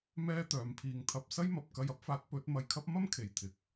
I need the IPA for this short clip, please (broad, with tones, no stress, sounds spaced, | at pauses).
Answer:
m ɛː˥ t̪ œː˨˧ m pʰ iː˧ ŋ t̪ʰ ɐ˧ p̚ s ɐ˥ j m ɐ˨ p̚ k ɐ˧ j ɐ˥ p̚ f aː˨˥ t̚ p ɵ˨˥ t̚ m ɐ˧ j kʰ ɐ˥ p̚ m ɐ˥ m kʰ e˨˩ j t̪ʰ ɪ˨ k̚